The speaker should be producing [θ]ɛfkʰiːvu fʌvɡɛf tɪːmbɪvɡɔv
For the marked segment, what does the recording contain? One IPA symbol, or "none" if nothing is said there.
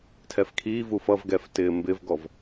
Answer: tʰ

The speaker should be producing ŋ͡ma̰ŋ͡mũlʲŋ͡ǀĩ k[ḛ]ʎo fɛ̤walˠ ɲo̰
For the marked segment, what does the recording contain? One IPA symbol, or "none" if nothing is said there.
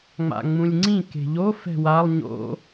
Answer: e̤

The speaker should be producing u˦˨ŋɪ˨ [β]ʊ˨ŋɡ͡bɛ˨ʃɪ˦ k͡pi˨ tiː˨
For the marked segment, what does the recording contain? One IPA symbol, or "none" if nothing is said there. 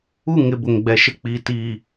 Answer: b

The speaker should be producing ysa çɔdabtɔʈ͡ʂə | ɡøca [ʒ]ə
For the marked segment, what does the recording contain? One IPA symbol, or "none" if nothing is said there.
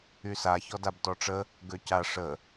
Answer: ʂ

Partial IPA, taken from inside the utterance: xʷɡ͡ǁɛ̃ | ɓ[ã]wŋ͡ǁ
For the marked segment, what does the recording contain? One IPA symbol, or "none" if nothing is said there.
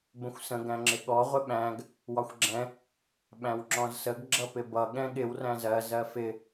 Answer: æ̃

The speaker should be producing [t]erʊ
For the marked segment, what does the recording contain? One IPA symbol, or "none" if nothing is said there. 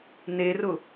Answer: n̪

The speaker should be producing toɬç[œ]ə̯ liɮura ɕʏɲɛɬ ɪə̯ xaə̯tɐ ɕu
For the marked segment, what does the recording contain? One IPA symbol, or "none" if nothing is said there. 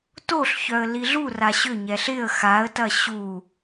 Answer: œ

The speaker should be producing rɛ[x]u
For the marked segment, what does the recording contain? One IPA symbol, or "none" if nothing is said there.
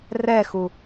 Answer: x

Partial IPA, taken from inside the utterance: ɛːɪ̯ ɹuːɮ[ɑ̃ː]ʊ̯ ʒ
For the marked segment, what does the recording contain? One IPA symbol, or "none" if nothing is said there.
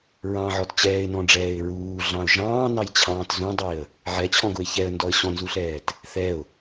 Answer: ɑ̃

